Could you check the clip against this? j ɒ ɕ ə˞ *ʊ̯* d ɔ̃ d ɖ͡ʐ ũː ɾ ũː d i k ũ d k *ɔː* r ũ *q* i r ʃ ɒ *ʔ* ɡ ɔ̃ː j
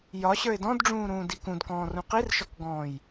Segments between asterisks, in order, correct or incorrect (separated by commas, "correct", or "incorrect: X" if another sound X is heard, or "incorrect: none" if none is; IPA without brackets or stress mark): incorrect: ɪ̯, incorrect: ɔ̃ː, correct, incorrect: k